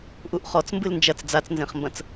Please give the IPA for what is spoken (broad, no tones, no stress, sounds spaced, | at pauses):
ʔ u ʔ χ ɔ t͡s m b ɨ l n d͡ʒ ɐ t͡s d͡z a t͡s n z ẽ χ m b ɐ̃ t͡s